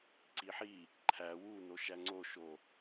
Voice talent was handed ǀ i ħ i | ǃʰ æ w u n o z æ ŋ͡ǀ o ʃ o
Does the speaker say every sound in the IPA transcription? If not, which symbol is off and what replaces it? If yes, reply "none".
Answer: z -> ʃ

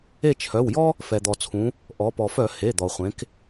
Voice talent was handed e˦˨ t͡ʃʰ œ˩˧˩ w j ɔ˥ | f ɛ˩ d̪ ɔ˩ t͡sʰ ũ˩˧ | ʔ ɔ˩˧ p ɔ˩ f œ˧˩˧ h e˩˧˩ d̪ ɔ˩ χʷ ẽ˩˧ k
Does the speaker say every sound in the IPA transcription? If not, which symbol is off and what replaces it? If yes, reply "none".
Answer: none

